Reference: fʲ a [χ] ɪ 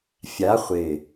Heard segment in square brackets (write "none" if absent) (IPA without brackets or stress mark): χʷ